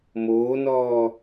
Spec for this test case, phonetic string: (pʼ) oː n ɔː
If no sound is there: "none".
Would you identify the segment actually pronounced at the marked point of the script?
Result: m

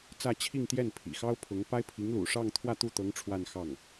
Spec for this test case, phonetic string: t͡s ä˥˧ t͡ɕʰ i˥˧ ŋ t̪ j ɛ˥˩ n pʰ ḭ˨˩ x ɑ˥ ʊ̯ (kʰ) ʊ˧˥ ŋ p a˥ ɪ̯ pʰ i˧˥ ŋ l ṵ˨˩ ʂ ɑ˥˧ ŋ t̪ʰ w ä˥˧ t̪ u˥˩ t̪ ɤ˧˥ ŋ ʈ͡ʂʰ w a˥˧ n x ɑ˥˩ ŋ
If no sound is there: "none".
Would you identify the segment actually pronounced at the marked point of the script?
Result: pʰ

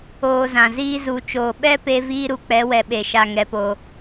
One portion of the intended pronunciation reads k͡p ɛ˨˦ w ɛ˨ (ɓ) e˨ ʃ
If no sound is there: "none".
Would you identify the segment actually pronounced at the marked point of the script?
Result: ɓ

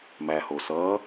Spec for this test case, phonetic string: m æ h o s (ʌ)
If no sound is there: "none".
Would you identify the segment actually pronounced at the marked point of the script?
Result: ʌ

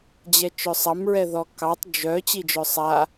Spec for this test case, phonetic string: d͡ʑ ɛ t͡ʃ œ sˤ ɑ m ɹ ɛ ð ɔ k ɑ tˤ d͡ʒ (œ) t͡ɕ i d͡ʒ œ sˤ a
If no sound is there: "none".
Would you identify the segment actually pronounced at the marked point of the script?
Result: œ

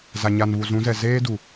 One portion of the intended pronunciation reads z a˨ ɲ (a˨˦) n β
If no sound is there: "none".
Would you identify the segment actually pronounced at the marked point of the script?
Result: a˨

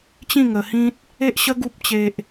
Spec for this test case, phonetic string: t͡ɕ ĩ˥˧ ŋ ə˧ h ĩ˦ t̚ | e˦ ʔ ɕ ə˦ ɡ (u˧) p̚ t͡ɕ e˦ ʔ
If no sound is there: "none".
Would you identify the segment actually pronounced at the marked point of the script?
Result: u˦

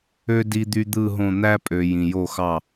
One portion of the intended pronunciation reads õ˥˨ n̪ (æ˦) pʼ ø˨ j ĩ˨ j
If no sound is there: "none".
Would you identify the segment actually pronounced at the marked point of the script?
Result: æ˦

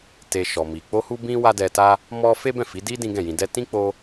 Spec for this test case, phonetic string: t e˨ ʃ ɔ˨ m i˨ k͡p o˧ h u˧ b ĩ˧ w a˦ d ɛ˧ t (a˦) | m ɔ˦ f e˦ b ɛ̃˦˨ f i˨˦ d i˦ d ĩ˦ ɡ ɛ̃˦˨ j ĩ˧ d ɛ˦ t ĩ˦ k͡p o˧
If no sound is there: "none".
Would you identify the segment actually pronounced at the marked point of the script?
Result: a˦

